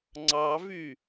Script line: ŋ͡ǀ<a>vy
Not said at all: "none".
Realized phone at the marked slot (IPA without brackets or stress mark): ɑ